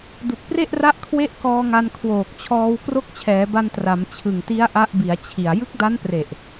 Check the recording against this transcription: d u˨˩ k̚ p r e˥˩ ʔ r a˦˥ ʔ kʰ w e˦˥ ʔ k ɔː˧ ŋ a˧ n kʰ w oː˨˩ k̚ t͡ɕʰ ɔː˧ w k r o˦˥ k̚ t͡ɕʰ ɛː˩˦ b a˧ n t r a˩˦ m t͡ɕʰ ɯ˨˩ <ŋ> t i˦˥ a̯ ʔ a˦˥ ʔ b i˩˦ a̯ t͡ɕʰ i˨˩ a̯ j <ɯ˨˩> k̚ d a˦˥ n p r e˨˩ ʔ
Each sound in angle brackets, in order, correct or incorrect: correct, incorrect: ɯ˦˥

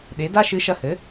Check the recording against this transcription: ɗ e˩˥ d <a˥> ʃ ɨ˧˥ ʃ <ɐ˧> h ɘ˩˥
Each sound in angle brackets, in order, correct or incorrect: correct, correct

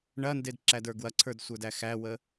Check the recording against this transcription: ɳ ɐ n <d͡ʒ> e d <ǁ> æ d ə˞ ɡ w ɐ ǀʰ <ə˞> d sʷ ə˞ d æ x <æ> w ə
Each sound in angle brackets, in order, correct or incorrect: incorrect: d, correct, correct, correct

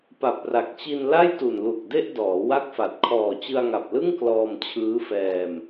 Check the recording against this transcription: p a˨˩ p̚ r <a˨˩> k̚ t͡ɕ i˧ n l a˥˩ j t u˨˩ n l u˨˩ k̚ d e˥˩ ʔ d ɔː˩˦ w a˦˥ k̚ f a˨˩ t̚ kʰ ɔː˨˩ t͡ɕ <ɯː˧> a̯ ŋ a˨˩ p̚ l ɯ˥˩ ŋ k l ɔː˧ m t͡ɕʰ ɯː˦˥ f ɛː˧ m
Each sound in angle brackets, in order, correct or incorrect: correct, incorrect: ɯ˧

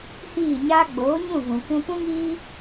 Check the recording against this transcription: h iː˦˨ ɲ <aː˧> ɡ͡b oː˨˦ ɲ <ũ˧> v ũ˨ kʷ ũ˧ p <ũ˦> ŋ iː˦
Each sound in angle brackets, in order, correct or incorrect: incorrect: aː˦, incorrect: ũ˦˨, correct

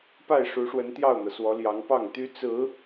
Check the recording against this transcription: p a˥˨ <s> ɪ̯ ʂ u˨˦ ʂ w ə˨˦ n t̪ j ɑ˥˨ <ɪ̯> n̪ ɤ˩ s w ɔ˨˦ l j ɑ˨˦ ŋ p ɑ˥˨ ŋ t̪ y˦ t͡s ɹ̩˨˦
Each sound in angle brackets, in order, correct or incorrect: incorrect: none, incorrect: ʊ̯

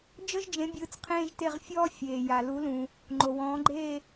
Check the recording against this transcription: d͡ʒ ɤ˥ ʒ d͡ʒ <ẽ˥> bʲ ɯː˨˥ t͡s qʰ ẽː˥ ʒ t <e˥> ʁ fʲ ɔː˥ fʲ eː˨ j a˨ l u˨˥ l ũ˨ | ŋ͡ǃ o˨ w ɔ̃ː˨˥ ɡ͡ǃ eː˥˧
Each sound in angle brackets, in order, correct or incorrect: incorrect: ẽ˨˥, incorrect: e˥˧

